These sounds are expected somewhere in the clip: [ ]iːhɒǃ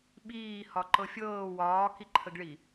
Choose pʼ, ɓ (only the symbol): ɓ